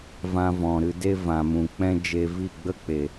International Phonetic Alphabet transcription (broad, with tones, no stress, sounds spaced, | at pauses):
v ã˧ v ɔ̃˨ ɾ ɨ˧ d e˦ v ã˨ m ũ˨ k͡p ɛ̃˦ d͡ʒ e˧ v i˦˨ ɡ͡b ə˦ k͡p e˨